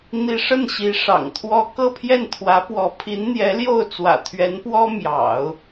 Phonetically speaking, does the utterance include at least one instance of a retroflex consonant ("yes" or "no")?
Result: yes